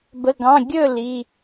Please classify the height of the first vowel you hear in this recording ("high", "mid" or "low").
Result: mid